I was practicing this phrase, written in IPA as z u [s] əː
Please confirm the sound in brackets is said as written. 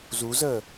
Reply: no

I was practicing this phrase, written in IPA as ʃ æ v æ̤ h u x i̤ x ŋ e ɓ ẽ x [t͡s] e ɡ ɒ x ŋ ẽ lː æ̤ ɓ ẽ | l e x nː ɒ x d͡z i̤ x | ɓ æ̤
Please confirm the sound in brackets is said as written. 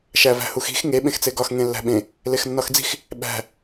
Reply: yes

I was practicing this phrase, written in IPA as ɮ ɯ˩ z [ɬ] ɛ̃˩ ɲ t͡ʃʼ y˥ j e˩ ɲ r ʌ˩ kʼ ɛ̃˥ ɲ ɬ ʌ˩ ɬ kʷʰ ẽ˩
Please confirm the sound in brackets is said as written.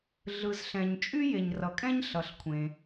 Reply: yes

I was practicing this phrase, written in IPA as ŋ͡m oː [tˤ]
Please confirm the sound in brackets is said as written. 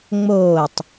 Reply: yes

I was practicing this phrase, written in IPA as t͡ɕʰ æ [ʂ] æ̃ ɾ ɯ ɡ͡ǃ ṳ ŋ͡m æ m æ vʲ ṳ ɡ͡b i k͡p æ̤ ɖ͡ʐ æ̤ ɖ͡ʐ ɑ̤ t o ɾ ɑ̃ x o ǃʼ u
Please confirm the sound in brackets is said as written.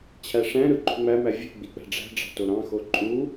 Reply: yes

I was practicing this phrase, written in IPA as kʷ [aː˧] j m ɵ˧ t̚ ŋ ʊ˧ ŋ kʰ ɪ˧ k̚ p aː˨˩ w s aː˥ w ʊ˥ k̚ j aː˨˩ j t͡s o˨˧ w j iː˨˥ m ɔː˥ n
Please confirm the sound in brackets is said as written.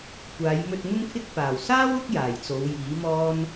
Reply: no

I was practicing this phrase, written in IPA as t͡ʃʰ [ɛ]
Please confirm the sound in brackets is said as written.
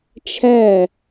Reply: no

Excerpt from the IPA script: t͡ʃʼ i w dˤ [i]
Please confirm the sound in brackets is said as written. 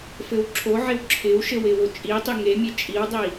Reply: yes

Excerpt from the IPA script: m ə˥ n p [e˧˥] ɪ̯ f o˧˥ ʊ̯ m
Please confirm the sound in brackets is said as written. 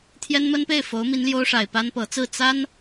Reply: no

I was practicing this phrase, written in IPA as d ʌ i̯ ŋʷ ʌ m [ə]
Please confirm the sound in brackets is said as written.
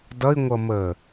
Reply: no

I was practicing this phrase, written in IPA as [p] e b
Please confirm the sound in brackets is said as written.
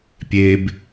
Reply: no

